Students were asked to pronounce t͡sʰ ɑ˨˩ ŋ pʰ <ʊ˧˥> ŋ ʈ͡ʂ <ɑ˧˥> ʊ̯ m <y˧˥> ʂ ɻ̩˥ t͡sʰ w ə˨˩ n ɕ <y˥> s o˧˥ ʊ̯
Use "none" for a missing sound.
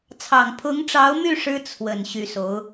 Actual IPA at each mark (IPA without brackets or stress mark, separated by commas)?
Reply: ʊ˧˥, ɑ˧˥, y˥˩, y˧˥